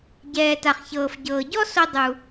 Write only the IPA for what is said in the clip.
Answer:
ɟɛː˩ta˩χçɤː˩f ɟɤː˩ɟɔ˥ so˧ dˤu˩

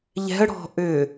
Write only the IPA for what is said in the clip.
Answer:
ʎɛ̤ə̯ ɽɔ̤ ʔʏ

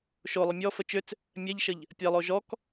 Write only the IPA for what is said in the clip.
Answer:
ʃolˠə mʲɔfə t͡ʃʏt͡s | mʲɛʎʃəʎ | pʲɛlˠo ʒɔk

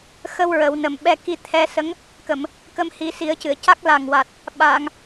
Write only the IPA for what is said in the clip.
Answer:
xə˧w ɹə˨˩˦wnə˨˩˦m ɓɛ˧ki˧t̪ʰɛ˧˥sə˧˥ŋ | kə˨˩˨m | kə˧mhi˨˩˦si˨˩˦ə̯cɨ˨˩˨ə̯ ca˦˥k̚ la˨˩ŋwa˨˩t̚ | ɓa˨˩˨ŋ

